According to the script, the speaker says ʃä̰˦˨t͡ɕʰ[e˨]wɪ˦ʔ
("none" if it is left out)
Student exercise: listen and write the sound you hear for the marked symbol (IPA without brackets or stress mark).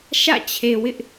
e˨